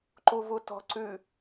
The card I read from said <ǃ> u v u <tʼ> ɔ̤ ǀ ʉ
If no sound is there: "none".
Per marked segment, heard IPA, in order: ǃ, t

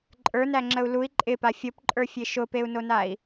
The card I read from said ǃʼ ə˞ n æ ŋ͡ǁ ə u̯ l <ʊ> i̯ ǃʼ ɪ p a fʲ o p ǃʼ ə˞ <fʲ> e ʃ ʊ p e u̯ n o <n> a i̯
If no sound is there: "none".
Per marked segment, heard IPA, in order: u, fʲ, n

